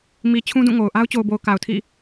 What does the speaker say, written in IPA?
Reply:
m i˨ t͡ɕʰ ũ˦ d ũ˦˨ ŋ o˨ ʊ̯ ʔ a˦ ʊ̯ t͡ɕ o˨ ʊ̯ b o˨ ʊ̯ k a˨ ʊ̯ tʰ ḭ˦˨

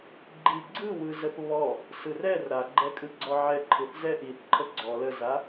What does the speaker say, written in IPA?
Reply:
ɡ͡ǃ i ɡ͡ǀ ɯ w ɯ z ə θ β ɔ | s ɯ r ɛ r ɾ a ɡ͡ǃ ɛ kʼ ɯ ɡ͡ǀ ɔ ʕ ɛ ǃʰ ɯ θ z ɛ ʔ i θ ǃʰ ə ɡ͡ǀ ɔ l ə z a

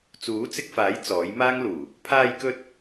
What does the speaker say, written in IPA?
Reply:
t͡s uː˨˥ t͡s ɪ˧ k̚ f aː˨˥ j t͡s ɔː˨˥ j m aː˥ ŋ l uː˨˩ | pʰ aː˧ j k ɵ˧ t̚

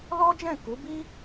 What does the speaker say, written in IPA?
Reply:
l ɔ˦ d͡ʒ ɛ̃˦˨ k u˨˦ b i˦

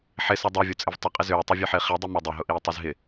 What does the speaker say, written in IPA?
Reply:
ħ ɪ s œ dˤ o vʲ o t͡sʼ ɪ v tˤ ɪ qʼ ɪ z ʏː ʊ̯ tˤ u vʲ œ ħ ɪː χ i dˤ i m o dˤ ʏ ɦ ʊ ʔ iː tˤ i z ɦ ɪ

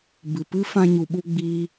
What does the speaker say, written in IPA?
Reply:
b ɨ˨ p ɨ˦ f ã˧ ɲ u˨ ɓ u˧ ɡ͡b iː˦

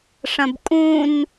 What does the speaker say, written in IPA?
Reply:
ʂ ɐ̃ b kʼ ũ n

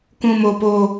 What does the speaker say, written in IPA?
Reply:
k ũ˨ m o˨ p o˨

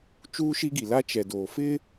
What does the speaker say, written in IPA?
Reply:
t͡ʃ uː˦ ʃ i˦ ɡ i˨ l a˦ t͡ʃ ɛ˨ d oː˨ f ɪ˦

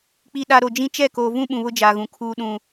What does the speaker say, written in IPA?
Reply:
k͡p i˨ ɗ a˨ ɾ o˨ d͡ʒ ĩ˦ t͡ʃ ɛ˦˨ k oː˨ v ũ˦ ɓ ũ˨ β ʊ˦ d͡ʒ aː˨ ɣ ũ˨ kʰ uː˦ ɗ ũ˦

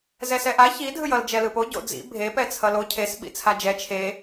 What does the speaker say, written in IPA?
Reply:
z ɛ s ɛ ʔ a ç i dʱ ɯ j ʌ l d͡ʒ ɛ l ɯ p o ɟ o̰ d͡z ḭ bʱ e p ɛ t͡sʰ ʌ l o cʰ e s ɓ ḭ t͡sʰ a d͡ʒ ɛ t͡ʃʰ e

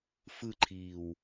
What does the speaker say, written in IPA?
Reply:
f ɯ ǃʰ iː w

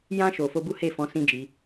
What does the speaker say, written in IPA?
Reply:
j ã˧ ʃ o˨ f o˧ b u˦ h e˦˨ f ɔ̃˨˦ s ĩ˦ d͡ʒ i˧

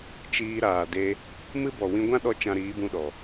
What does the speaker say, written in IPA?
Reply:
t͡ʃ iː˧ ɾ aː˨ d e˧ | m ɨ˦ b ɔ˨ w ĩ˧ ɡʷ ã˦ ɗ ɔ˧ t͡ʃ ã˧ ɾ iː˨˦ b ũ˧ ɗ ɔ˨

